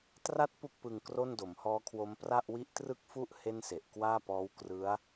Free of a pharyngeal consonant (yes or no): yes